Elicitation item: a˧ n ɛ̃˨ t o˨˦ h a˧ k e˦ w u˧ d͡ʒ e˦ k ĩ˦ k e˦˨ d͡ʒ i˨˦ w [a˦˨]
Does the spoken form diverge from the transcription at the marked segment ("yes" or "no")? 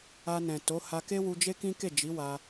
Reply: yes